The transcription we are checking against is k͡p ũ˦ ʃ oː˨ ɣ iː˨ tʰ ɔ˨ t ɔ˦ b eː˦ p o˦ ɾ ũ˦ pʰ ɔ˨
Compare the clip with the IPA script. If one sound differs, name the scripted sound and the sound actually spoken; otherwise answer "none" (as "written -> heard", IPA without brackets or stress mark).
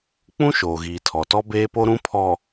none